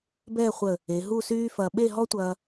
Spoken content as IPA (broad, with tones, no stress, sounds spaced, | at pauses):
b ɛː˥˧ χʷ ə˧˩ | e˩˧ ɦ u˥˧ s yː˥ f ɐː˧ ɓ e˥˧ ɦ ɔ˥ tʷ ɐː˧